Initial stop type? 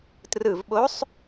plain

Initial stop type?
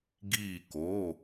plain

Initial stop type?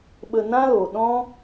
implosive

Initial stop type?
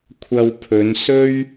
aspirated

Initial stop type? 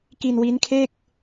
plain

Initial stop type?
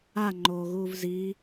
click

